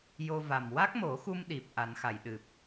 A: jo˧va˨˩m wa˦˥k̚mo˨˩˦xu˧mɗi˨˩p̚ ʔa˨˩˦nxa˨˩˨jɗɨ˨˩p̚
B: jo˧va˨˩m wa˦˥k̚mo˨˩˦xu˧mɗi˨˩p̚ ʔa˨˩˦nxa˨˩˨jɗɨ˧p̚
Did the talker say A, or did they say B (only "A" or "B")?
A